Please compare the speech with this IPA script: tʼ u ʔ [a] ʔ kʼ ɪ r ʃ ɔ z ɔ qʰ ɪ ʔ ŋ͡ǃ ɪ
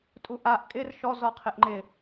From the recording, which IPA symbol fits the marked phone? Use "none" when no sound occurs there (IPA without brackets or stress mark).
a